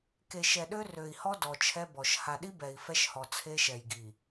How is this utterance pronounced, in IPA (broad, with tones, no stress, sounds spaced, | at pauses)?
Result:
k e˨ ʃ ɛ˨ ɗ ø˦ r ø˨ i̯ h ɔ˦ d ɔ˨ t͡ʃʰ ɛ˦ b ɔ˨ ʃ h a˨ ɗ i˦ b ɛ˨ i̯ f ɛ˦ ʃ h ɔ˨ t͡sʰ e˦ ʃ ɛ˨ j ɡ i˨